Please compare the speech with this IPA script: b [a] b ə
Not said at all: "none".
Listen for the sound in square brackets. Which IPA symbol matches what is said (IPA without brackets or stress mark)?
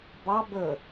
ɑ